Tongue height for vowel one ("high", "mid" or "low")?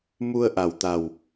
high